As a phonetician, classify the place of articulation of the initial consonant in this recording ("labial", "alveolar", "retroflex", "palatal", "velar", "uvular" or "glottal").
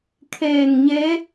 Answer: velar